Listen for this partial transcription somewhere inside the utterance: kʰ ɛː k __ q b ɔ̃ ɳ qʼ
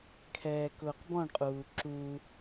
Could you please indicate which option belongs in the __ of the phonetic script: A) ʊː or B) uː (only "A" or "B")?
A